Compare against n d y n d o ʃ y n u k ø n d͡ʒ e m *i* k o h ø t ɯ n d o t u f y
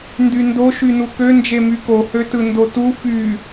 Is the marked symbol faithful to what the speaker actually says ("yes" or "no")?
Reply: no